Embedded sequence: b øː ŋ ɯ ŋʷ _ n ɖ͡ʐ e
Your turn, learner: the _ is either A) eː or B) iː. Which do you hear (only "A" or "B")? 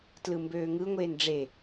A